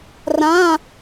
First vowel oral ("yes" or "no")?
no